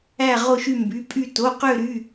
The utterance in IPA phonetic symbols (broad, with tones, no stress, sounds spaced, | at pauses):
æ˦˨ ʁ o˦˨ ʃ y˦˨ m b y˩˧˩ pʼ y˦˨ t o˩˧˩ q ø˦˨ ɾ y˩˧˩